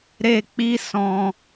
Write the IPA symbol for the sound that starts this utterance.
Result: ɾ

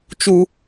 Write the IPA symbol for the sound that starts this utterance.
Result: t͡ʃ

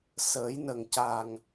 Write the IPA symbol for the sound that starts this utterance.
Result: s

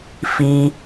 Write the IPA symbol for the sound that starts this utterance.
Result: f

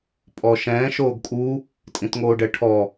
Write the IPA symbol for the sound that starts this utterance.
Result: pʼ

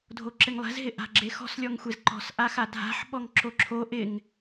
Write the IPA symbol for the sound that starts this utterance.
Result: dʱ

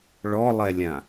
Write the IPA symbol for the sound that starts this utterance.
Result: ɭ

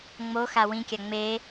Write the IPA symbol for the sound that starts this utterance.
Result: ŋ͡m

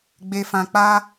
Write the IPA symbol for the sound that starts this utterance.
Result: ɡ͡b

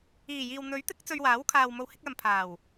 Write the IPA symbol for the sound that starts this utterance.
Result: iː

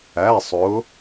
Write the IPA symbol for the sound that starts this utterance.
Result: æ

